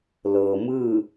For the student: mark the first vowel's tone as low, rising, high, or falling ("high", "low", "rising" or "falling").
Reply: low